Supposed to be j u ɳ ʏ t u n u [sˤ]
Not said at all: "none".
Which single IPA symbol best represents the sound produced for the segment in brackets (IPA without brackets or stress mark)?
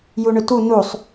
sˤ